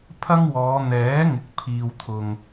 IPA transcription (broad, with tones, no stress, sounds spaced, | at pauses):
pʰ ɐ˥ ŋ w ɔː˨˧ n̪ ɛː˨˥ ŋ ɪ˨ k̚ pʰ iː˧ w t̪ʰ ʊ˧ ŋ